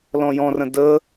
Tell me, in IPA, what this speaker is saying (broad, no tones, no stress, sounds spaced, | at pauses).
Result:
l ɔ̃ j ɔ̃ r ə̃ d ə